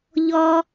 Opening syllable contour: high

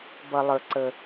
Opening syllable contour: low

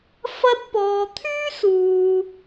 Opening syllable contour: high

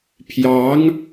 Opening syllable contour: rising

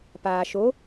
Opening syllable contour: low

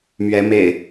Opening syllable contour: rising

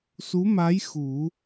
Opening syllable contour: rising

